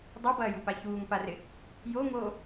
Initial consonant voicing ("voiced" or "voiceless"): voiced